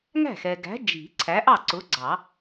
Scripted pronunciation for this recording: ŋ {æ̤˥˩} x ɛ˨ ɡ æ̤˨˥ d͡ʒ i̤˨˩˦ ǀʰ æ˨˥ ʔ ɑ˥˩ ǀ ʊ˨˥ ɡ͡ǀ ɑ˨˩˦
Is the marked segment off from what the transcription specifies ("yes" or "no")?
no